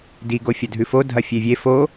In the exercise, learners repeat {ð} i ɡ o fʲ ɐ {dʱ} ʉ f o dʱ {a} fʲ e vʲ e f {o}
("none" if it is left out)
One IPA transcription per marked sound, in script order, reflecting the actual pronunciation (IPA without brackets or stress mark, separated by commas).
d, dʱ, ɐ, o